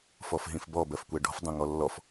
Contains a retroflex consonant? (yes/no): yes